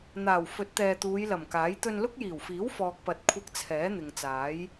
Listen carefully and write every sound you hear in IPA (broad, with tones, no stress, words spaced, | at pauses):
n̪aː˨˩wfɵ˨˥t̚t̪ɛː˨ t̪uː˨˧jlɐ˨˩mkaː˨˥j t̪ɵ˧nlʊ˥k̚jiː˨˩wfiː˨˥w fɔː˨k̚pɐ˨t̚kʷʰɐ˧k̚ t͡sʰɛː˨˥n̪ɪ˨ŋt͡saː˨˥j